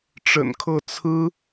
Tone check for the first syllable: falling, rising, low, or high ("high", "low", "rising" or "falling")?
low